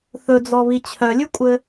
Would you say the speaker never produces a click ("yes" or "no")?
yes